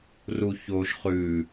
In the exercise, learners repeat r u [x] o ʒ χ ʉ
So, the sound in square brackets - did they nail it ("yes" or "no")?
no